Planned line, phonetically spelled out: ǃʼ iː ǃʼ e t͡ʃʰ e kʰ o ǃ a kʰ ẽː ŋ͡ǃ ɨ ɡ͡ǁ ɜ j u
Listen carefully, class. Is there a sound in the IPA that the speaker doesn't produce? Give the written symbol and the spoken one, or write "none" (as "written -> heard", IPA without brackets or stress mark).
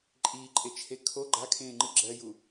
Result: ǃ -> ɡ͡ǃ